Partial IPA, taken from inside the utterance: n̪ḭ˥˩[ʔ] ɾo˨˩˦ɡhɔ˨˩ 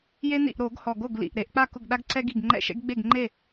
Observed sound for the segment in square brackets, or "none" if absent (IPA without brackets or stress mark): ʔ